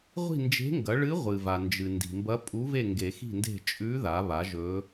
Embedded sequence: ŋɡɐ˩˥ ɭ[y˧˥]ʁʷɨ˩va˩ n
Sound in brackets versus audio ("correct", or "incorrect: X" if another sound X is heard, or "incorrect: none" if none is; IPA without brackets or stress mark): incorrect: ɨ˧˥